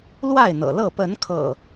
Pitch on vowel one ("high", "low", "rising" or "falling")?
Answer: falling